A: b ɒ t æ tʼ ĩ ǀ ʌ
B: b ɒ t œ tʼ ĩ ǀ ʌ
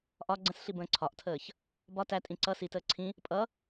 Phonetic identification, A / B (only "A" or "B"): A